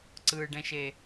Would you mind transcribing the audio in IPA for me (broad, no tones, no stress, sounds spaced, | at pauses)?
ǀ ɯ ɖ ɛ̃ ʃ e